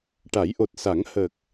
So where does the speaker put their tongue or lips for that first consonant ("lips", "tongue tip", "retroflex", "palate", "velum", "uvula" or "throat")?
retroflex